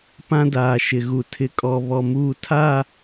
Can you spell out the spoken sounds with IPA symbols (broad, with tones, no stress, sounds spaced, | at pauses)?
p ã˦ d aː˨ ʃ ɪ˨ ɣ u˨ tʰ ɪ˨ kʼ ɔ˨ β ɔ˨ m uː˨ tʰ a˦˨